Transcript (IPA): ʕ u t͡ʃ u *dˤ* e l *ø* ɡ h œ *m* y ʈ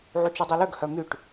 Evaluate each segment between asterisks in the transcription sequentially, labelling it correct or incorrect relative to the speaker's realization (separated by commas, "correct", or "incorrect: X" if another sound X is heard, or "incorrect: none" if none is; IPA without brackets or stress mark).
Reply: correct, correct, correct